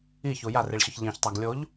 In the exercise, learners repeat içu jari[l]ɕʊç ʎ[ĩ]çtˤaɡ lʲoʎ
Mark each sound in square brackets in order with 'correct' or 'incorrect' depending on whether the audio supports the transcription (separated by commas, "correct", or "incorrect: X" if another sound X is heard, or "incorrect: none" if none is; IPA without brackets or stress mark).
incorrect: ɭ, correct